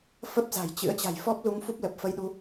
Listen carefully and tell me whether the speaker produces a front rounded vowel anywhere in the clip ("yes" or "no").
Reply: no